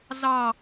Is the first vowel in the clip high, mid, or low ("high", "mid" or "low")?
low